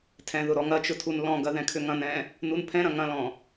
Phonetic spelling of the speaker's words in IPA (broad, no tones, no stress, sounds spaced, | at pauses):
tʰ ɛ̃ ð ʊ ɾ ɔ ŋ ɐ t͡ʃ ʊ tʰ u n l ɔ̃ ɡ ɐ ð ɛ̃ kʰ ʏ ŋ ɐ̃ n ɛ̃ | n u n pʰ ɛ̃ ɾ ɐ̃ ŋ ɐ̃ l ɔ̃